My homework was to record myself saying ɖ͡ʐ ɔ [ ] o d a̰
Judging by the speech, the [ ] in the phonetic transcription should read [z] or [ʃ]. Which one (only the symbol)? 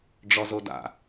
z